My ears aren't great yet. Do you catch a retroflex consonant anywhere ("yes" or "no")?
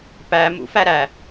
no